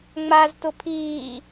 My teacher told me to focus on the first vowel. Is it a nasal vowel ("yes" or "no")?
no